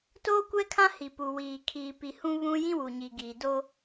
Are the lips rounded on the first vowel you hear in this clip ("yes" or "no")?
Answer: yes